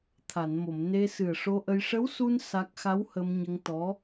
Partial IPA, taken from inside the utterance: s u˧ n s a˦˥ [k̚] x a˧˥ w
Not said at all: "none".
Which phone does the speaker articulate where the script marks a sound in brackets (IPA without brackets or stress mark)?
k̚